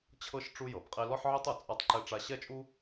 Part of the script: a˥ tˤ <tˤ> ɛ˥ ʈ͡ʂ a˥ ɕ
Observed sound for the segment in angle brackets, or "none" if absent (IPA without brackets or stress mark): ǃ